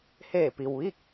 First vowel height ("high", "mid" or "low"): mid